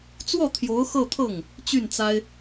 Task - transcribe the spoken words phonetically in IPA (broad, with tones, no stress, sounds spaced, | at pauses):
t͡s w ɔ˥˩ t̪ʰ j o˧˥ ʊ̯ x ɤ˥˧ t̪ʰ ɤ˥˩ ŋ | t͡ɕ y˥˩ n t͡s a˥ ɪ̯